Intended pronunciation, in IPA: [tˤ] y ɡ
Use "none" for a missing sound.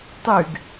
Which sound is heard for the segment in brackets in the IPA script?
tˤ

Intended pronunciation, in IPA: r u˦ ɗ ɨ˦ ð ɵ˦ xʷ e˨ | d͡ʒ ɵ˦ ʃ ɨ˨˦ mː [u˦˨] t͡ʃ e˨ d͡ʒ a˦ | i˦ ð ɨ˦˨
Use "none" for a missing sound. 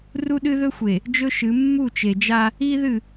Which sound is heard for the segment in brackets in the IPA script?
u˦˨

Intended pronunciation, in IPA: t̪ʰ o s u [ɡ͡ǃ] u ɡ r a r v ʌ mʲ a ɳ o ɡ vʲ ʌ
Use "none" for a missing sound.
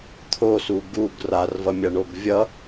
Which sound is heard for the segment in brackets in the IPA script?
ɡ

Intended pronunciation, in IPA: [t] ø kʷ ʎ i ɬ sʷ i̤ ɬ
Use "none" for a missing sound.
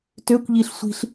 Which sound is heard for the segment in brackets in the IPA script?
t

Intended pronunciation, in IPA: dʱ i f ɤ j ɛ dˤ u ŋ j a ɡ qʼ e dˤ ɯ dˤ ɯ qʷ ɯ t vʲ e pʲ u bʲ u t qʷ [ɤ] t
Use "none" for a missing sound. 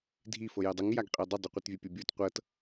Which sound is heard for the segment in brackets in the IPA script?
ɤ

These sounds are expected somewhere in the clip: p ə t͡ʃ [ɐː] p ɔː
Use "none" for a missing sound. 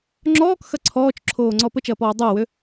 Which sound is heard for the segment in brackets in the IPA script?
ɐː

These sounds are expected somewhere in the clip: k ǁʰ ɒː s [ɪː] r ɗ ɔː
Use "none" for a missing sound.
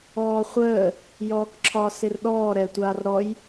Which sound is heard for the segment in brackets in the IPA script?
ɪ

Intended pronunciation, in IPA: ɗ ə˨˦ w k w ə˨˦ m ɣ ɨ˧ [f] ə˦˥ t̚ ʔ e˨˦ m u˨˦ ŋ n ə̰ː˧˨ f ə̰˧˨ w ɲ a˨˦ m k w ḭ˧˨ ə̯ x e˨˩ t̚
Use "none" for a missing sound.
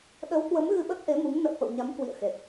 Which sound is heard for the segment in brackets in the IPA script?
ɓ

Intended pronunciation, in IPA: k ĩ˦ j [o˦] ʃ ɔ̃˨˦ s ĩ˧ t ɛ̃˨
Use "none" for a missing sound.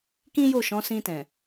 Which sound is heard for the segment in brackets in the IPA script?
o˦˨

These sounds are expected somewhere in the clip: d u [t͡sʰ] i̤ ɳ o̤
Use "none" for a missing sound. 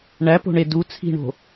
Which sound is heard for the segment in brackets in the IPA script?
t͡sʰ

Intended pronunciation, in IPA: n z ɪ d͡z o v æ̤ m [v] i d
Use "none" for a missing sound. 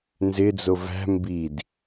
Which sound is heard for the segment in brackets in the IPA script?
b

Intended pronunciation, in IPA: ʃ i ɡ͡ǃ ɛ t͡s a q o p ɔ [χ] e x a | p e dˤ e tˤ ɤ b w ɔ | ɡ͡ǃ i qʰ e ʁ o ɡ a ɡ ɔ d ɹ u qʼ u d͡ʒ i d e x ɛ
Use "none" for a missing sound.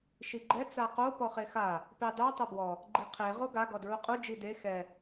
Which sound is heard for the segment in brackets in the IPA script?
χ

